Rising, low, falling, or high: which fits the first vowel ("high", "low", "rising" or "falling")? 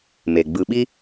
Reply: low